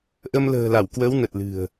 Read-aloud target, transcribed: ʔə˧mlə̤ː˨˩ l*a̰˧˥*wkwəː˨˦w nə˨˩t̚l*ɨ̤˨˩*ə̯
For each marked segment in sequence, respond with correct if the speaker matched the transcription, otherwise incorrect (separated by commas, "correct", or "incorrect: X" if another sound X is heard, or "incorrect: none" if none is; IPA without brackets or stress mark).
incorrect: a˧˩, correct